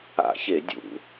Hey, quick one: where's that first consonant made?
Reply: palate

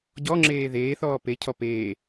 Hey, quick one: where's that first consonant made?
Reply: palate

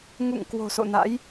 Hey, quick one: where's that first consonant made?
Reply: velum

